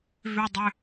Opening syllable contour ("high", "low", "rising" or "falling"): high